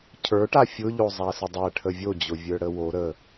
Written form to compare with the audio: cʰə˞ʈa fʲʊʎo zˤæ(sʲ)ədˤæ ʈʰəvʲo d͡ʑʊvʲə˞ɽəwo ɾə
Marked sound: incorrect: s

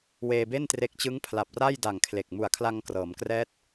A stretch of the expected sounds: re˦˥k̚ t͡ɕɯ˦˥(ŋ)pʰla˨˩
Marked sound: correct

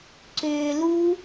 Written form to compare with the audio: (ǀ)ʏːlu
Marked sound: correct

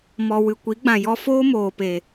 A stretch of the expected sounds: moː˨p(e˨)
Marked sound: correct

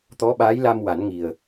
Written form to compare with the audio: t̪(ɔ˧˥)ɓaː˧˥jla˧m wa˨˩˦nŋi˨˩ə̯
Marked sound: correct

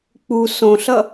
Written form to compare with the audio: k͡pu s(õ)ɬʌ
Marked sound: correct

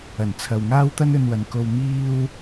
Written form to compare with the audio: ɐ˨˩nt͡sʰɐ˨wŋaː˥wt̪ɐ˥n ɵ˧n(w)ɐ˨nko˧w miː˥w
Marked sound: correct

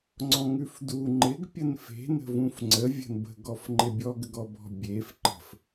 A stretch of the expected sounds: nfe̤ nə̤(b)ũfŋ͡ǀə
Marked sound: incorrect: v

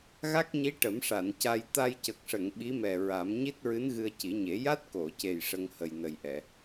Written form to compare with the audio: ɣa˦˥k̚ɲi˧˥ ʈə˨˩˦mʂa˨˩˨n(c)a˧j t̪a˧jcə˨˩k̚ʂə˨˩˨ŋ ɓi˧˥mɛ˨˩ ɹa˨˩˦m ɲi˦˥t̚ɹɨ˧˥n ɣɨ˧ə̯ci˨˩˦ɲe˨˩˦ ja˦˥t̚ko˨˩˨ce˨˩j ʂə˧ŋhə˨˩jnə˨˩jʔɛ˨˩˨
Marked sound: correct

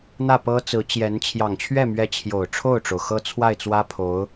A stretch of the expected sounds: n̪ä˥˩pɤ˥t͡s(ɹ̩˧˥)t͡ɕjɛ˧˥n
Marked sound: correct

